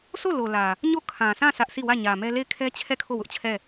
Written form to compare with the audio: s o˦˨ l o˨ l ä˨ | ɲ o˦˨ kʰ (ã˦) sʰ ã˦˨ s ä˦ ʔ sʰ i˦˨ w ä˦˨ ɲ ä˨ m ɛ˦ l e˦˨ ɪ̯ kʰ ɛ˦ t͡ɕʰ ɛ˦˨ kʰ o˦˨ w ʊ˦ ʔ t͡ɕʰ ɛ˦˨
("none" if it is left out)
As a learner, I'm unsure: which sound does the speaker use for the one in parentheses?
ã˨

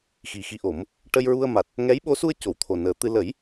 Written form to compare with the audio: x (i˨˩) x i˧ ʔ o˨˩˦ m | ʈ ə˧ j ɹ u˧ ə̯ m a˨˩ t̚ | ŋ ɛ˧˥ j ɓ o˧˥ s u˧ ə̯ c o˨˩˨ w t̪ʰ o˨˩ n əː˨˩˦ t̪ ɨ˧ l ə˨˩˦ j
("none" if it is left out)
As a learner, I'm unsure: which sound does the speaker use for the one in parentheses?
i˨˩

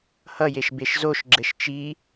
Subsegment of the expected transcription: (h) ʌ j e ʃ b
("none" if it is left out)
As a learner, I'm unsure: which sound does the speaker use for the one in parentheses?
h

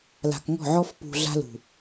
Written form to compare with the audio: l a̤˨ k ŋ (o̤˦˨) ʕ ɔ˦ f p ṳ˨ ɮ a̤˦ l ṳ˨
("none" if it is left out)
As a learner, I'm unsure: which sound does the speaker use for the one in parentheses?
ɔ̤˦˨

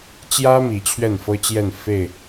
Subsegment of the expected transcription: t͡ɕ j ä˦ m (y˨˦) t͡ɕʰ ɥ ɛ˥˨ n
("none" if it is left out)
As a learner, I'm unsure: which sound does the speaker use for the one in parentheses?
i˨˦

